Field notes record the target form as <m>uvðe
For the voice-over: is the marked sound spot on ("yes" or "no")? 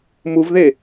yes